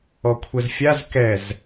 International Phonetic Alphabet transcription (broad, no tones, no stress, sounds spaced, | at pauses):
ɔ kʷʰ ɛ z fʲ a z k ɛ z